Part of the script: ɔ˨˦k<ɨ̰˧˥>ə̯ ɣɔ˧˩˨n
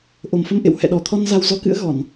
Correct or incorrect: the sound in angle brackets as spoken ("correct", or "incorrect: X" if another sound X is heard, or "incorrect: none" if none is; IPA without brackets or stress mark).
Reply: correct